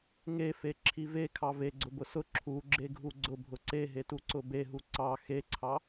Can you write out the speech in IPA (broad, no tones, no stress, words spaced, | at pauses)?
ŋefe ǁʰive kʰɑve ɡ͡ǀʊbʊsʊ ǁʰu ɡ͡ǁeɡʱuɡ͡ǀʊbʱʊ ǀeɦetu ǀʊbeɦu ǀɑ xeǀʰɑ